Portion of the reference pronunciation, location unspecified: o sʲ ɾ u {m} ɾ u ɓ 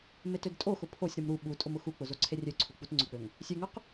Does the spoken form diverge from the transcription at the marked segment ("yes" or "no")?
no